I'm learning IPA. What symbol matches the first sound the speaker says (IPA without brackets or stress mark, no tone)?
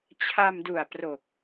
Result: t͡ɕʰ